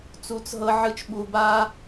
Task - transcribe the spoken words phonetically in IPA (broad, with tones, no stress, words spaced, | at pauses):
t͡su˧˩t͡s ɦɤ˥ʕɯ˥t͡ʃ ɓu˧ba˥